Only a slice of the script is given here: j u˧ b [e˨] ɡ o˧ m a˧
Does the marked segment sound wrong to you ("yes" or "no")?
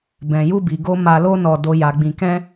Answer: yes